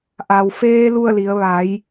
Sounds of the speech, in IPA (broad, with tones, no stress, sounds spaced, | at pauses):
ʔ a˩ w f eː˧ l u˥˨ ə̯ l i˩˧ ə̯ ʋ a˩˧ j